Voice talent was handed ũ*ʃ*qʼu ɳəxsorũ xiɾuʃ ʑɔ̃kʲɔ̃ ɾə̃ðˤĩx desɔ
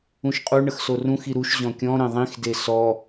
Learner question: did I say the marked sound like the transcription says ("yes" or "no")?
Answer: yes